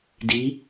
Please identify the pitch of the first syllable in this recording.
rising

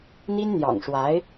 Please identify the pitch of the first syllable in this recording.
high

